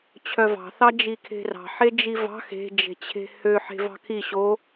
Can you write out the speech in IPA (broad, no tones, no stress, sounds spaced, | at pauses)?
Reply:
t͡ɕʰ œ v ɑ̤ θ ɑ d͡ʒ i kʰ e̤ r ɑ̤ ħ e d͡ʒ i v ɑ̤ x e̤ d͡ʒ e̤ t͡ɕʰ e̤ h ø ħ e̤ v ɑ̤ kʰ i ɕ o